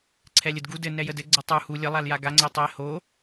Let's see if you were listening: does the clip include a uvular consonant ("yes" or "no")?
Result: no